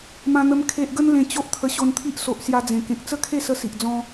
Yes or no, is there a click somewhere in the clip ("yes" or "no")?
no